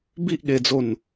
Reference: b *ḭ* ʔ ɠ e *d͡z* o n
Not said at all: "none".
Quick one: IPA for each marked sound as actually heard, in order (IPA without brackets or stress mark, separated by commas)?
i, d͡z